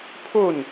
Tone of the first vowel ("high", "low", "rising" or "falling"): falling